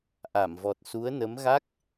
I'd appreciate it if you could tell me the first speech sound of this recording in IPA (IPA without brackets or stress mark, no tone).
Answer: ʔ